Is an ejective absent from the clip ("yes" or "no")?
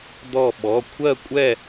no